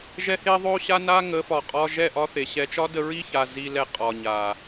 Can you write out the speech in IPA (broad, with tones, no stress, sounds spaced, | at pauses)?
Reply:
ʒ ɛ˧ h e˧ ðˤ o˦ ɕ a˦ n a˦ ŋ ə˨˦ f ɒ˨ qʼ ɒ˧ ʒ ɛ˦˨ ʔ ɒ˦ θ e˨ ɕ ɛ˧ t͡ʃ ɒ˦ d ə˧ ɹ i˦ ç a˨ z i˧ l ɛ˧ qʼ ɒ˨ ɲ a˨